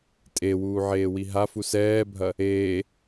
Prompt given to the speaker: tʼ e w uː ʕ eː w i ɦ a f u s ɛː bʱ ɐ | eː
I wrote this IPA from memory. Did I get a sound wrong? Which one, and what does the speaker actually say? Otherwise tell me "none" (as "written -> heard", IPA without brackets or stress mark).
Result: none